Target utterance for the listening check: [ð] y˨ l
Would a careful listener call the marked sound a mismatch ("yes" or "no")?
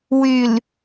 yes